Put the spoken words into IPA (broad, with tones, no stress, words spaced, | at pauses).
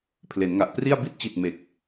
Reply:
pʰle˩˦nŋa˨˩ʔpri˥˩a̯ bi˦˥t̚t͡ɕi˨˩t̚ me˨˩k̚